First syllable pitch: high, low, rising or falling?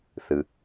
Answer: low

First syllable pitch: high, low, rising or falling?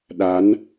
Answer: rising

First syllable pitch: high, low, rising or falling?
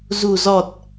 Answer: low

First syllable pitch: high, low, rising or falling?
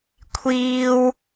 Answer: high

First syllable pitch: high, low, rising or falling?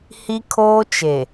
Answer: high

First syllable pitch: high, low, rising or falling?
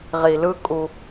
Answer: low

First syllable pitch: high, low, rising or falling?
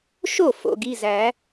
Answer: falling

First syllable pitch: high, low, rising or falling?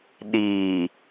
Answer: low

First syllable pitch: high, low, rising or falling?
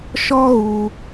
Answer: high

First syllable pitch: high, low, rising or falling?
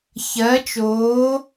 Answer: rising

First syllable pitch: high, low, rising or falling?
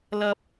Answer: low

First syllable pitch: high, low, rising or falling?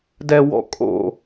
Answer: low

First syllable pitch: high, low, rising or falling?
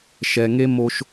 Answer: low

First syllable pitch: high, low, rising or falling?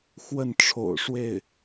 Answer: falling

